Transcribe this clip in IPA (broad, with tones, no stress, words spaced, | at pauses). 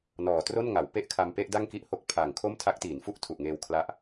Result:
nɔː˨˩tro˥˩nŋa˩˦w pe˥˩ʔkʰa˧m pe˥˩ʔda˥˩ŋki˥˩ʔho˦˥k̚ pʰa˨˩ŋ kʰo˥˩mtʰa˦˥k̚tiː˩˦n fu˥˩ʔtʰu˨˩ʔŋeː˧w kʰla˦˥ʔ